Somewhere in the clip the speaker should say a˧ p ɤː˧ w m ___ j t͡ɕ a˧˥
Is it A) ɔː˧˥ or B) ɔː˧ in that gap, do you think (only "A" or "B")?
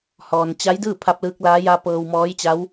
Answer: A